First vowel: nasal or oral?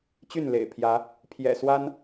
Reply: oral